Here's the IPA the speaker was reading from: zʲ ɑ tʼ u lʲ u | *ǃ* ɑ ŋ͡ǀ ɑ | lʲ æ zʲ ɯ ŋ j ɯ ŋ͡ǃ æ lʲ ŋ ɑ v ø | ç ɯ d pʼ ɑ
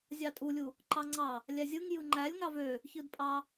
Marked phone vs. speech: correct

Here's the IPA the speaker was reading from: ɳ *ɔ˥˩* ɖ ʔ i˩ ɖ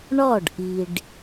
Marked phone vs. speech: correct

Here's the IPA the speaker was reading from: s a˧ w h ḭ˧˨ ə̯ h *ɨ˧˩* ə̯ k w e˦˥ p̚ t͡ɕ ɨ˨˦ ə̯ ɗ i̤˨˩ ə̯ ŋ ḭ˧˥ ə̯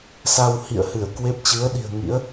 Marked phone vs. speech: correct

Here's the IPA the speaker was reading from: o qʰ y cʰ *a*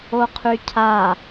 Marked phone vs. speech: correct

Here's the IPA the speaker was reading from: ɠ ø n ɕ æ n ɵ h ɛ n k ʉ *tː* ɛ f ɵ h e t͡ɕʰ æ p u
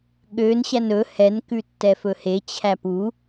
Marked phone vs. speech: correct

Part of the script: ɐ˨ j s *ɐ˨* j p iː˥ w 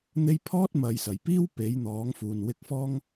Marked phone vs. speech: incorrect: ɐ˨˩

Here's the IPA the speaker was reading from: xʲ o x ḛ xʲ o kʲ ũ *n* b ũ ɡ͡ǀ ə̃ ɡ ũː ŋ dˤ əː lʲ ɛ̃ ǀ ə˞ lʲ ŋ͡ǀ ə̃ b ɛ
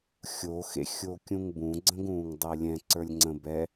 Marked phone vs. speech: incorrect: ŋ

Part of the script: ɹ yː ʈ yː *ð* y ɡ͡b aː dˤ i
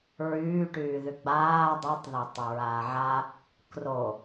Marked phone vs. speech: correct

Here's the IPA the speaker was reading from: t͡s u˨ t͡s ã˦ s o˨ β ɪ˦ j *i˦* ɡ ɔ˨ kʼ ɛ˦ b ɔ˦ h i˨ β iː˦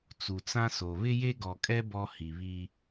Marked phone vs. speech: incorrect: e˦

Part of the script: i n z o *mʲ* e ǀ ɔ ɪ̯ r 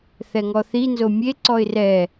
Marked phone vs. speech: correct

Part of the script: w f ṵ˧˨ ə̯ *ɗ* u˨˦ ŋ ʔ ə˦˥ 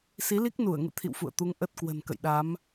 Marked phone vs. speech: incorrect: t̪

